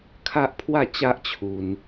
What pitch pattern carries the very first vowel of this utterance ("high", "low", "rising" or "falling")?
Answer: high